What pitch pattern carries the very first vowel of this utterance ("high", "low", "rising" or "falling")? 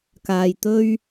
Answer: low